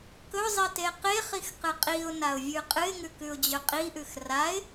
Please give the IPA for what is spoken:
k ɵ zˤ i t e q e χ i x q ɨ qʼ i ʊ̯ n a ʊ̯ vʲ ʉ qʼ ɨ ɪ̯ ŋ ʉ k ʉ ʊ̯ d͡ʑ ɵ qʼ i ʔ ʉ x r a ɪ̯

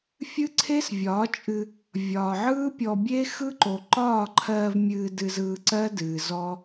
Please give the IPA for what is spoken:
fʲ ɨ˦ ǀʰ e˦ s vʲ ɒː˨˦ t͡ʃʼ ɨ˧ | vʲ ɒː˨ ʕ ɯː˦ pʲ ɔ˧ bʲ e˦ x ɯ˦ ǃ o˨ ǃ ɒː˦˨ ǃʰ ɜː˧ v mʲ ɨː˧ d ɨ˧ z ɯː˧ ǀ ɜ˦ d ɨː˨ z ɔ˦

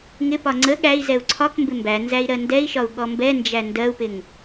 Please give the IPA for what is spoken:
ŋ ɪ p ɒ ŋ͡ǀ ə ɠ æ i̯ z ɛ u̯ ǀʰ ɒ k m b ɪ m b æ n z æ i̯ ɾ ɜ n d ɛ i̯ ʃ ɒ u̯ ɠ ɔ m b ɛ n d͡ʒ æ n d ɜ u̯ p ɪ ŋ

